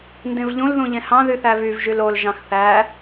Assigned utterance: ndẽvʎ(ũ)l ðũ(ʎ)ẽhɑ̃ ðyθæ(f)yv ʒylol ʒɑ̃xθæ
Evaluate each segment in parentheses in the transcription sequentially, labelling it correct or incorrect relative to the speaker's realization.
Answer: correct, correct, incorrect: v

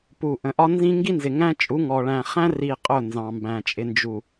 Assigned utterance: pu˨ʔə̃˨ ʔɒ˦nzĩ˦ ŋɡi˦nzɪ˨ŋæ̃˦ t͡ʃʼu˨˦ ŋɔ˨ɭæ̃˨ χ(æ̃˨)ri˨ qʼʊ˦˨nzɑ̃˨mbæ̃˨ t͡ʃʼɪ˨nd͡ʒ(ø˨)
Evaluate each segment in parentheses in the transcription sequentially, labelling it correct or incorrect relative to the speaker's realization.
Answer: incorrect: æ̃˦, incorrect: u˨

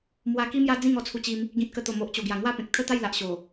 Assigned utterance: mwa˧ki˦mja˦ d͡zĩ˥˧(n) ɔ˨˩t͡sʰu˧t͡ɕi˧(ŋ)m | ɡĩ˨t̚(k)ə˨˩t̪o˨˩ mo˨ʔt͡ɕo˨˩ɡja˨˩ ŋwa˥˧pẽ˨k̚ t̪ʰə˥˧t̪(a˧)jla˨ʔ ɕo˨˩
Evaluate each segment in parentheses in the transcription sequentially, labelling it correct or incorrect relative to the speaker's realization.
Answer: incorrect: ŋ, incorrect: none, correct, incorrect: a˥˧

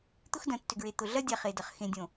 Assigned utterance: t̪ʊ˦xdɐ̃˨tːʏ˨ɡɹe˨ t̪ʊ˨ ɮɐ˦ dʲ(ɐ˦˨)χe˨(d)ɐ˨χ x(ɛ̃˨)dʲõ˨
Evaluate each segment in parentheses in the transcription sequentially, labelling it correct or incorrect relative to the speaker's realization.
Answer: incorrect: a˦˨, correct, incorrect: ẽ˨

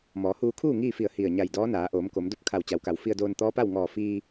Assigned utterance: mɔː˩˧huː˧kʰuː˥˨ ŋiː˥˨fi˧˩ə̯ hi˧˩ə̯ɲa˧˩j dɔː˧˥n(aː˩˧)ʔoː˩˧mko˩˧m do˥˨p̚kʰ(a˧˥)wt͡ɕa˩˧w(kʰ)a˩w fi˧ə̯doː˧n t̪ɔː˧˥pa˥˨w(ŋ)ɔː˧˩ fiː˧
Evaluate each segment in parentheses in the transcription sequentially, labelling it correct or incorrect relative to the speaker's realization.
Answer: correct, incorrect: a˧˩, incorrect: k, correct

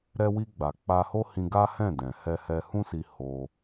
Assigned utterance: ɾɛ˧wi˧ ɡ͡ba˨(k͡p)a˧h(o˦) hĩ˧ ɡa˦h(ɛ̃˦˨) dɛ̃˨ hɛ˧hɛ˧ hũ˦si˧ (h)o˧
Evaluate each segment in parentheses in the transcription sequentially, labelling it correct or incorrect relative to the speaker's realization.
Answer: correct, correct, correct, correct

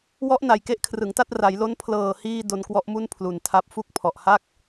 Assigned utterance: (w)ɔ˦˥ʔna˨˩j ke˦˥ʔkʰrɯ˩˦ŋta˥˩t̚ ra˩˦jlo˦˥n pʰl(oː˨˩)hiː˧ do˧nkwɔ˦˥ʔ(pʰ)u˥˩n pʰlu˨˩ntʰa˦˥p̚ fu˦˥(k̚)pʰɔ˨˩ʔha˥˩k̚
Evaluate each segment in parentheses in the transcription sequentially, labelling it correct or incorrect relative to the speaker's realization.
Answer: correct, incorrect: ɤː˨˩, incorrect: m, correct

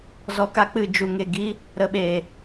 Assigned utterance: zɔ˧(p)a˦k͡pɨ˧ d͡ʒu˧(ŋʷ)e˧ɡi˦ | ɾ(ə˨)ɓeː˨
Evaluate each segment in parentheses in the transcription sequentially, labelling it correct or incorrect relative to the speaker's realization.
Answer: incorrect: k, incorrect: ŋ, incorrect: ə˧

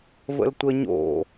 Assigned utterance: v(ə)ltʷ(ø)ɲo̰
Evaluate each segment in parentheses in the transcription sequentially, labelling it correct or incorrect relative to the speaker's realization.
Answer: incorrect: ə̰, incorrect: ə

